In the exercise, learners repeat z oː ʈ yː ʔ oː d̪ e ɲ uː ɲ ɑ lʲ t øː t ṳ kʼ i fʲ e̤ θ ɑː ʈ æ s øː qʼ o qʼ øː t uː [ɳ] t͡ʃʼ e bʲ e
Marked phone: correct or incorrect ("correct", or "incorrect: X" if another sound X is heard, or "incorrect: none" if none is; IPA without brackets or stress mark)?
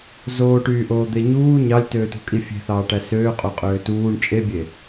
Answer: correct